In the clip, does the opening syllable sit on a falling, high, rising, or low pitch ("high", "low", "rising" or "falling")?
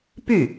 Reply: falling